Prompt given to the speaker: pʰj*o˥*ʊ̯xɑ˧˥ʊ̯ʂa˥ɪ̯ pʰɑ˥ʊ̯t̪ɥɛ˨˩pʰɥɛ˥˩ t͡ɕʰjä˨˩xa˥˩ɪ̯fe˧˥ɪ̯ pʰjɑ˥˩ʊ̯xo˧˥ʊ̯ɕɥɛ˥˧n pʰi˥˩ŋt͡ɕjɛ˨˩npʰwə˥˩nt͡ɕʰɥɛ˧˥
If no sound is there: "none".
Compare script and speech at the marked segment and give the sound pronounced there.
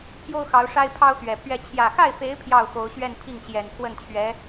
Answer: o˥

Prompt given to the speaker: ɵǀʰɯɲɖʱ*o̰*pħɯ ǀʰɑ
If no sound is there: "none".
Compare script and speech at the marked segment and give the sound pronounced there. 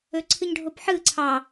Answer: o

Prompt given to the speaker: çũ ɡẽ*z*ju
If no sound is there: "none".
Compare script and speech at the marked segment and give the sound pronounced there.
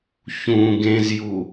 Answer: z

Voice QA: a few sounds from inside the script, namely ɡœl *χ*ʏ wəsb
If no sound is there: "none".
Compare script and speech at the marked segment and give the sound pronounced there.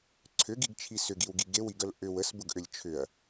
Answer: ʔ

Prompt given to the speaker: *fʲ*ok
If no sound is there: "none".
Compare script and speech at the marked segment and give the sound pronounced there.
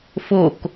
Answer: f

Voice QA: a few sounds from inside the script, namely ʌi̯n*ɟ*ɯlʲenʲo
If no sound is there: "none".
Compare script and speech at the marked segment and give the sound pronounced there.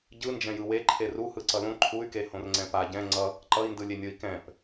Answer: d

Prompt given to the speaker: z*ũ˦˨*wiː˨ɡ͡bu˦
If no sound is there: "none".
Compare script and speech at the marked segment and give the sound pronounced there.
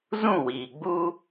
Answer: ũ˦˨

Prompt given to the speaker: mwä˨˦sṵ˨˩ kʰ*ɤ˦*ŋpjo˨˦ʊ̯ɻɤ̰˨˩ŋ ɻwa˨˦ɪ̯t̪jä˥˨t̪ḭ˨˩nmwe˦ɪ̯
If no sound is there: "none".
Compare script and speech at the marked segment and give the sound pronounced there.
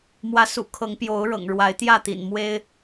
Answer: ɤ˨˦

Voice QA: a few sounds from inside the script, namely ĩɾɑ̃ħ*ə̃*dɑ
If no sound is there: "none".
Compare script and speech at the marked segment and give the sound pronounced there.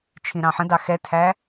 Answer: ə̃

